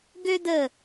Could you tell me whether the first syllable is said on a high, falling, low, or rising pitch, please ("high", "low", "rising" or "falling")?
high